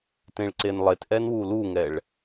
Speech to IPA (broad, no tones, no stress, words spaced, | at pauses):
tẽɭǀenlˠet ʔɛnwuluŋɛɭ